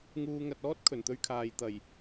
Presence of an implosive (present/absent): absent